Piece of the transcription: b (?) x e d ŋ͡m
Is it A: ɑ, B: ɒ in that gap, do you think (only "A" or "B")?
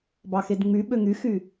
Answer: A